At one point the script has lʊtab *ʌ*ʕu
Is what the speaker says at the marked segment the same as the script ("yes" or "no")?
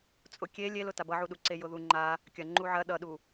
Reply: yes